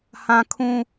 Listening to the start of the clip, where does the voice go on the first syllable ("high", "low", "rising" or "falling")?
high